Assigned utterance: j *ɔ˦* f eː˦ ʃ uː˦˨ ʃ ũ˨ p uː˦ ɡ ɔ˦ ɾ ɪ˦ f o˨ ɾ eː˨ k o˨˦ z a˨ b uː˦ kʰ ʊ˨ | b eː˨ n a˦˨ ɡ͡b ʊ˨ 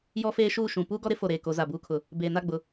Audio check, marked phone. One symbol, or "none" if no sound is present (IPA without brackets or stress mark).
ɔ˦